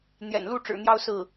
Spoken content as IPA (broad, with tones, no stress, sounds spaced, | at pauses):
n̪ j ɛ̰˨˩ n l u˥˩ ʈ͡ʂ ɻ̩˨˩ n̪ j ɑ˥˧ ʊ̯ s ɹ̩˥˩